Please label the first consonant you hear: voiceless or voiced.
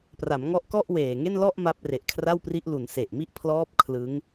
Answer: voiceless